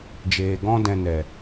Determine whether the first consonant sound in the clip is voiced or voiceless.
voiced